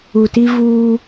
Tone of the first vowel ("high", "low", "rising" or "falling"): low